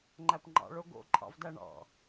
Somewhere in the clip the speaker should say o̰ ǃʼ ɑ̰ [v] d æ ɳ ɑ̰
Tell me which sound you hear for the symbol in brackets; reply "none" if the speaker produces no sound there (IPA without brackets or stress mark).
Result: v